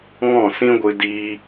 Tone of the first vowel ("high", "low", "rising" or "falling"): falling